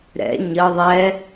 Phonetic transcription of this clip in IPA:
ɾ ɛ̰ ɲ ə ðˤ ɛ

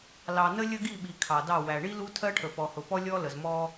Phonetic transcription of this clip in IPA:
l ɑ˨ n ə˦ lʲ ə˦ ɡ i˦˨ ɓ i˨ kʰ ɑ˨ d ɑ˦˨ w æ˨ ɳ i˦ l u˦ tʰ ɜ˦ ʈʰ ə˨ p ɔ˨ h ʊ˨ p ɔ˦ lʲ ɔ˦ l ə˨ z m ɔ˦

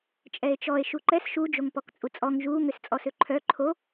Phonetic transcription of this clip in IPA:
t͡ʃʼ ɛ e̯ t͡ʃ ɔ e̯ ʃ u ǃ ɛ s ʃ u d͡ʒ o ŋ p ɔ k t͡sʼ u t͡sʼ ɔ ŋ ʒ u ŋ ø s t͡sʼ ɔ s ø ǃʰ œ ǃʰ o

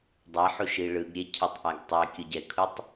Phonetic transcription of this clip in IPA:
dˤ ʌ ħ u ʃ i ɭ ɯ ɡ ɾʲ e cʰ i tˤ ʔ a ɡ tˤ ɛ kʲ ɯ ɟ ɛ kʰ u tˤ

